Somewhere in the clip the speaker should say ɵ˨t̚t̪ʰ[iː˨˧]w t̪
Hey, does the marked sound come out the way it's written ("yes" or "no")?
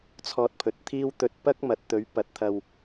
no